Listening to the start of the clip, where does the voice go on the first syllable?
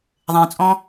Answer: low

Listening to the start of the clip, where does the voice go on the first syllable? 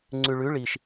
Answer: low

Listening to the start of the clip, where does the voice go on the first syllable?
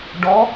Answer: rising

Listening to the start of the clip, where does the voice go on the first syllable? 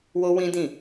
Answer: high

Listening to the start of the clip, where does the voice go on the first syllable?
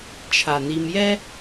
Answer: low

